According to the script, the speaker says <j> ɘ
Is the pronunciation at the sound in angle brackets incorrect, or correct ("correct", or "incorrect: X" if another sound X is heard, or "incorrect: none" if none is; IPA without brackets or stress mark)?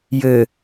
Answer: correct